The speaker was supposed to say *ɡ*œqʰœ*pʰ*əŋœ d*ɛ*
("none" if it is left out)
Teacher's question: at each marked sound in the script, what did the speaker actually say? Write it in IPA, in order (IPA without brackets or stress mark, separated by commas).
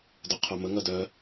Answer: d, m, œ